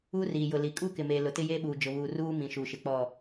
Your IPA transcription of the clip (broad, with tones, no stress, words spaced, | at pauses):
uː˦riː˨jʊ˨li˨ kʼuː˦kɪ˨meː˨ lʊ˨tɪ˦jeː˦ɓuː˨ d͡ʒʊ˨βuː˨ ruː˦mĩ˨ ʃuː˨ʃɪ˨k͡pɔ˦˨